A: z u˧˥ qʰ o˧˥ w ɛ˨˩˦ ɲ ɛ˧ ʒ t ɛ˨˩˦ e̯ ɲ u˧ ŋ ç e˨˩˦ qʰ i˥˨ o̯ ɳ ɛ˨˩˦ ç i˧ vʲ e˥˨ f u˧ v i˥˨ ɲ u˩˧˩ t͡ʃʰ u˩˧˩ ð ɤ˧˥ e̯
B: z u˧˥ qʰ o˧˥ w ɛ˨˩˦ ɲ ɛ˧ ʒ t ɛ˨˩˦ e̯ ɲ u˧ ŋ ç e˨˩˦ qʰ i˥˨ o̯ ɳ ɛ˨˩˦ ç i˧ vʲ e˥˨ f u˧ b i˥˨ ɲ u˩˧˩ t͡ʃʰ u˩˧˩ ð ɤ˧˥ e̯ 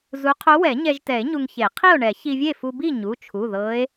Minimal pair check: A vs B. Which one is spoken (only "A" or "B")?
B